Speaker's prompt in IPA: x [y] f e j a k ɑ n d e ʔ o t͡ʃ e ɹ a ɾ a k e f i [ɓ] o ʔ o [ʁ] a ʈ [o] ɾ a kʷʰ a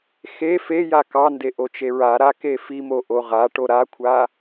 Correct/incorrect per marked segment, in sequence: incorrect, incorrect, correct, correct

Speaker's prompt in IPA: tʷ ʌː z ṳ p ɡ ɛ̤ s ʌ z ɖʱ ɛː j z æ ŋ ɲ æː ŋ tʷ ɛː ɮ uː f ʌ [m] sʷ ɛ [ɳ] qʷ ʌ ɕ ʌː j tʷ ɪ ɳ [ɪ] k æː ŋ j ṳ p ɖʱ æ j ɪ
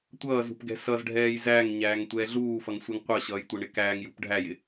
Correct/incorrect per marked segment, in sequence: incorrect, incorrect, correct

